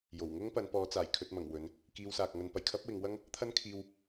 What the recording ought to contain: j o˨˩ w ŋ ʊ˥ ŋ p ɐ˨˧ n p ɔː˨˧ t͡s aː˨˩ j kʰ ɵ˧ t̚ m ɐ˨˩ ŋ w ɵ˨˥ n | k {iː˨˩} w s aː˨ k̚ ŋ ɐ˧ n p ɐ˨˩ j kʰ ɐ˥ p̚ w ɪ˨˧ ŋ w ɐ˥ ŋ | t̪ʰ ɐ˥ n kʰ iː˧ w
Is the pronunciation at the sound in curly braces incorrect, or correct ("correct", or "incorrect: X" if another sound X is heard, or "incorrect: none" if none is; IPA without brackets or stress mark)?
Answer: incorrect: iː˧